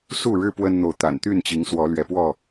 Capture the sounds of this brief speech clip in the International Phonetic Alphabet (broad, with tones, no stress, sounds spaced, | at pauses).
s u˥˨ ɻ ɻ̩˦ p w ə˦ n n̪ o˨ ʊ̯ t̪ a̰˨˩ n t̪ y˥˨ n t͡ɕ i˨˦ ŋ s w ɔ˨˦ l ɥ ɛ˨˦ p w ɔ˥˨